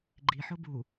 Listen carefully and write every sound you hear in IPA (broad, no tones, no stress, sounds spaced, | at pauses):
ɡ͡ǃ i ħ ʊ b u